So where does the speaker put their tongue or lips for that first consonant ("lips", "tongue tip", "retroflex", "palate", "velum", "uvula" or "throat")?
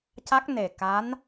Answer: palate